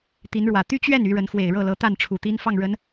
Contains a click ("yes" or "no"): no